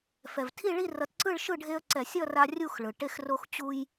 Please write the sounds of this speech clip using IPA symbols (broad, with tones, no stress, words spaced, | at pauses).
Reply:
fɛ˩vtʰi˥˨ ɭi˥˨rʌ˨˦tǀɯ˥˨ɭ ʃɯ˥˨ɖʱe˦ə̯ǀɛ˧˩˧sʲ ʌ˥˨ ra˦rʲu˥˨xɭɯ˩ ʈe˦xro˦x t͡ɕu˦j